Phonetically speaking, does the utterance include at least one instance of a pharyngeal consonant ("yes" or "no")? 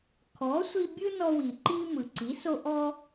no